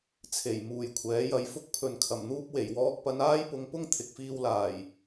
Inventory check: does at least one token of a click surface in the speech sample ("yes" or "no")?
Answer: no